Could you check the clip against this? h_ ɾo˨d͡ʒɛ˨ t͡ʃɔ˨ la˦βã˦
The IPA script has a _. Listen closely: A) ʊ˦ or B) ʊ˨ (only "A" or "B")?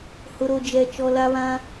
B